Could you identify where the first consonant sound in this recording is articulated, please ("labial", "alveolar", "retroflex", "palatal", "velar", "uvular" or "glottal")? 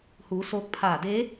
glottal